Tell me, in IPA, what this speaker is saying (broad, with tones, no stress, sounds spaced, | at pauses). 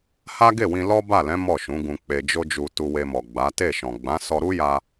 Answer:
h a˦ ɡ e˦˨ w ĩ˧ l ɔ˦ b a˦˨ l ɛ̃˨˦ m ɔ˦˨ ʃ ũ˨˦ ɡ ũ˧ k͡p e˨ d͡ʒ o˧ d͡ʒ u˨ t u˧ w e˧ m ɔ˨ ɡ͡b a˨˦ t e˦˨ ʃ ɔ̃˨ ɡ͡b ã˨˦ s ɔ˧ ɾ u˦ j a˧